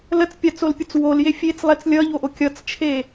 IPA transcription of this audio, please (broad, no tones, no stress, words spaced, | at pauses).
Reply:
lət͡spʲat͡solpʲʊt͡s wolje fʲet͡slˠet͡s lʲʌʎoʔo kʲʌt͡st͡ʃʰe